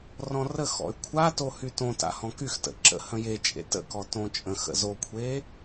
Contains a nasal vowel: yes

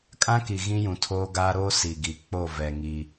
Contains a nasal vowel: yes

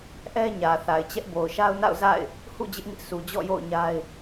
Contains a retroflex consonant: no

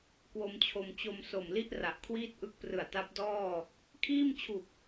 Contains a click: no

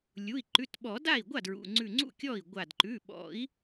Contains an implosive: yes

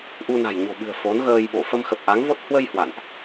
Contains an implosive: yes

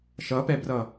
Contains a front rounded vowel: no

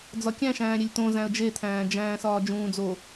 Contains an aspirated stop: yes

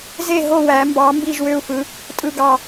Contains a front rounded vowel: yes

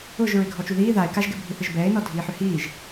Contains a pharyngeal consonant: yes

